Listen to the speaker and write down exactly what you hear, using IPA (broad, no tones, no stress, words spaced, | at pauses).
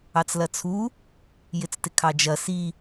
ɑt͡slɐt͡sʰu | jɪt͡stɪkʰɑd͡ʒɐ si